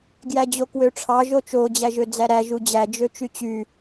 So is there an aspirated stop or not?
yes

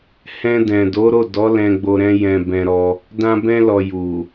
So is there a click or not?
no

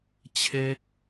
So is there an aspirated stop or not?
yes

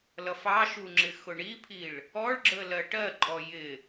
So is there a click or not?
yes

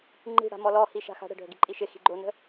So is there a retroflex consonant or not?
yes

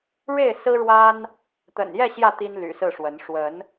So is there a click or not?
no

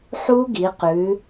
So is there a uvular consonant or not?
yes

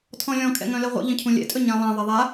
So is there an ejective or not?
yes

